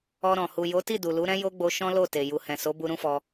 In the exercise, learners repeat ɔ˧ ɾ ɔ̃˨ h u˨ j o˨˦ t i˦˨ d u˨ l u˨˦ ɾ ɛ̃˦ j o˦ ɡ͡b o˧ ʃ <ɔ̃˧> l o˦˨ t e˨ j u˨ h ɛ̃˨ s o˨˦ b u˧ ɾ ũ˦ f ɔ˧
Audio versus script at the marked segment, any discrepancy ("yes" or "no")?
yes